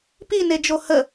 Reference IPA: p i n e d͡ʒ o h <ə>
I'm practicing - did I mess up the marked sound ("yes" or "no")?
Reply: no